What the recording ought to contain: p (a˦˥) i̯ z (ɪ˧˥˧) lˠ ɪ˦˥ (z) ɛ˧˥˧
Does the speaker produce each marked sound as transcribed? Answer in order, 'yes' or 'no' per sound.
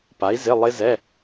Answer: no, yes, yes

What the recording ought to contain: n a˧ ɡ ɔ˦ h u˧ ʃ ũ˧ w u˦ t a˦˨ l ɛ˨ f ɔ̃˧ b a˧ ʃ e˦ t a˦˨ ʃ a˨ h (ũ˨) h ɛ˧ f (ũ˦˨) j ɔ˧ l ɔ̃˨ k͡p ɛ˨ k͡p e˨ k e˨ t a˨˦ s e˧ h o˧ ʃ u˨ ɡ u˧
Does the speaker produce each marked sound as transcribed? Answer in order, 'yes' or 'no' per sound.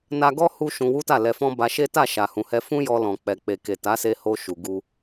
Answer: yes, no

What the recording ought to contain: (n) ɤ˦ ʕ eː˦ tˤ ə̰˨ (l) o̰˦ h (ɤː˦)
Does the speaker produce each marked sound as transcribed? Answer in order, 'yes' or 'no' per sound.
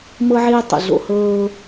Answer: no, no, yes

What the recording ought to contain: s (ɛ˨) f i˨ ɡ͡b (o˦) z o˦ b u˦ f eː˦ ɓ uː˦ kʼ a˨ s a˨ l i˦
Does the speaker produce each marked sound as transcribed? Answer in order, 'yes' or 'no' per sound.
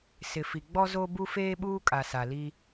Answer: no, no

